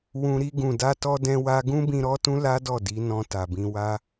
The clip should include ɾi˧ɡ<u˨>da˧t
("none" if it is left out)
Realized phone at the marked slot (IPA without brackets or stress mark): ũ˨